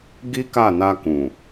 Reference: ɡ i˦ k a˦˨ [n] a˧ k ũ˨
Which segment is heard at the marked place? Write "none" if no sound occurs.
n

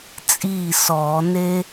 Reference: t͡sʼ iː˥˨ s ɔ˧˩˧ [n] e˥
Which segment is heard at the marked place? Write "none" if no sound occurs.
n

